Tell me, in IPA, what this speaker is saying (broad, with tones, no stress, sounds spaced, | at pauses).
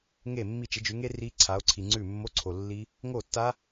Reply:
ŋ e˥˩ mː i˥˩ t͡ʃ ɪ˨˦ d͡ʒ ʉ˨˦ ŋ e˦˥ r i˦˥ ǀʰ a˨˦ o̯ ǀʰ i˨ ŋ͡ǀ ʉ˥˩ mː o˧˥˧ ǀʰ o˨ lː i˦˥ | ŋ o˥˩ tː a˦˥